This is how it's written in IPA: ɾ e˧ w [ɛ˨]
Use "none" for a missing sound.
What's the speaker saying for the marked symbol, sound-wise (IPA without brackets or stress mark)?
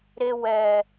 ɛ˨